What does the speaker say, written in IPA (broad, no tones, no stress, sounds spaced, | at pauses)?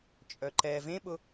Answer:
t͡ʃʼ œ ǃ ɛ v ẽ ɓ ʊ